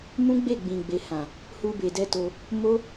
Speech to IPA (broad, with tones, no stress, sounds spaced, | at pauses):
m ũ˦ ɡ͡b e˦˨ ɡ͡b ĩ˨ ɡ͡b e˨ h ã˨ | h u˧ b e˨ d ɛ˧ t o˧ | m o˦